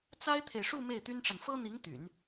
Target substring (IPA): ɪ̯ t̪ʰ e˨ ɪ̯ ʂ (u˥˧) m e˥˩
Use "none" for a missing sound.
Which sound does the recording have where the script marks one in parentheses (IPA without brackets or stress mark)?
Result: u˥˧